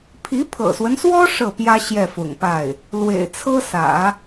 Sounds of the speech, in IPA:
pʰ i˧˥ pʰ ɤ̰˨˩ s w ə˦ n s w ɔ˥ ʂ ɤ˥˩ p j ä˥ ɕ j ɛ˥˩ f ʊ̰˨˩ ŋ p a˥˩ ɪ̯ | l w ḛ˨˩ ɪ̯ t͡sʰ ɤ˥ s ä̰˨˩˦

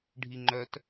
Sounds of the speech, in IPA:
ɖʱ i ŋ͡ǃ œ t

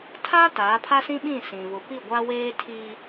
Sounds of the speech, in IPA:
tʰ a˦ t aː˨˦ pʰ a˦ s ĩ˦ ɓ ĩ˦˨ s ĩ˨ β ʊ˨ p i˦˨ ɡʷ a˦ w eː˦ tʰ iː˦

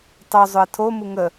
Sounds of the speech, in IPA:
tˤ o zˤ ʊ ə̯ tʰ o m u ŋ ə

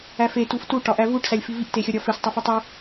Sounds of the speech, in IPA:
æ f e t u f t u ʈ ɒ ʔ æ v u ʈ s æ lʲ f i v i ʔ t e xʲ ɒ ɾʲ ɒ f e s tˤ e f u tˤ o

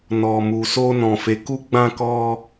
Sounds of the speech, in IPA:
n ɔ˨ m u˨ s o˧ n ɔ̃˨ f e˨ k u˧ ɡ͡b ã˧ k ɔ˧

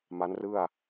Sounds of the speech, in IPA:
m a˦˥ n r ɯ˥˩ a̯

